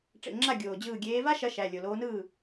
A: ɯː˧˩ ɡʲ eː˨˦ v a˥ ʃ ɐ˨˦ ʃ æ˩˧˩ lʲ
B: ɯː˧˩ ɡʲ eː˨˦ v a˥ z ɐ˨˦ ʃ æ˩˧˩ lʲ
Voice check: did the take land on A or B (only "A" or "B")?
A